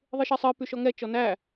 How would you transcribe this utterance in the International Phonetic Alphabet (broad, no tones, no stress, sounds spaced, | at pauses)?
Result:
ðˤ ɨ ʃ e sˤ ɨ p y ʃ ɔ ŋ ɛ t͡ʃ ɔ n æ